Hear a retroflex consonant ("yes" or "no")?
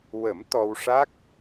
yes